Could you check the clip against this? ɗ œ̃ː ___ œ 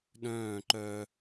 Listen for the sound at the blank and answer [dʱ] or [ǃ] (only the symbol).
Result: ǃ